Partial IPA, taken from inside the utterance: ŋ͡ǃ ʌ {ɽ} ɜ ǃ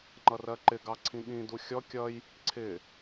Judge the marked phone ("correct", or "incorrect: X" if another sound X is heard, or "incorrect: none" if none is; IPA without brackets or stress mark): incorrect: r